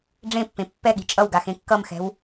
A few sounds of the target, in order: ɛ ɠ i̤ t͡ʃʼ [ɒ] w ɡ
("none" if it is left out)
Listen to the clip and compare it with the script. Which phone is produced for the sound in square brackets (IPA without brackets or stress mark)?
ʌ